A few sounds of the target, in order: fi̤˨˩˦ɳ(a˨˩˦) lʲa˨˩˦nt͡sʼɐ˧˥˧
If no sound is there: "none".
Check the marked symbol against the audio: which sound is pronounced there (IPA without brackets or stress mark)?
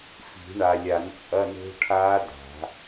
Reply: a˨